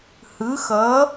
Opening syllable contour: rising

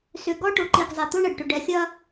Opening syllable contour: low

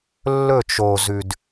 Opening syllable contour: falling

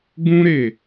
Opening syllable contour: high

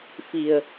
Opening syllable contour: low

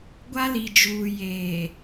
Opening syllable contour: high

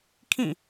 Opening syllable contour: falling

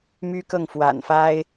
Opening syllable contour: high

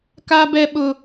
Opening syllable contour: high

